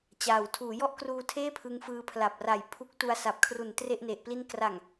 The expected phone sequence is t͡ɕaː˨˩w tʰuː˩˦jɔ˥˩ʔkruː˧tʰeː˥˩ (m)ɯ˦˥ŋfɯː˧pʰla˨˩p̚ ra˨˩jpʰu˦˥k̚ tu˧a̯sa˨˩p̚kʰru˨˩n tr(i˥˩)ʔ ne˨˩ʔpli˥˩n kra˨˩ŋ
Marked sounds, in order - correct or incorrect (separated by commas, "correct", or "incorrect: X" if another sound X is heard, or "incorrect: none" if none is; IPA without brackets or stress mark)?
incorrect: pʰ, incorrect: e˥˩